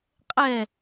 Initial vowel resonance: oral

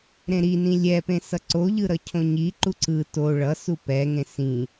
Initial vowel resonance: nasal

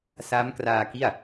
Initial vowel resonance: oral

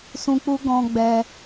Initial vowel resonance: nasal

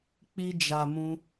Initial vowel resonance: oral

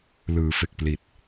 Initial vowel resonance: oral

